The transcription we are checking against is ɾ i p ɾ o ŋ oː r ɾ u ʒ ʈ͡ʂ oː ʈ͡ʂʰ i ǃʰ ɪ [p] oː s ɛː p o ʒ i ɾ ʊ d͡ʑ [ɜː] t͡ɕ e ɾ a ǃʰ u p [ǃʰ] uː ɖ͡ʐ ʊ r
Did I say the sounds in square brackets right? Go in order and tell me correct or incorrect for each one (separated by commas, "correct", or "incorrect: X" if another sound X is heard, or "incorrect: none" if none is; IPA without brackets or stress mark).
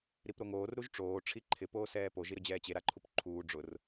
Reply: correct, incorrect: ɛː, correct